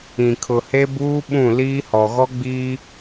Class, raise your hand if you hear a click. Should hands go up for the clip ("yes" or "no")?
no